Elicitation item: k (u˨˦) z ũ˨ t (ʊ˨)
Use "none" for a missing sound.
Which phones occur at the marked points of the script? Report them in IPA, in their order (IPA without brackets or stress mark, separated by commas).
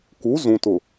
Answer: u˨˦, ʊ˨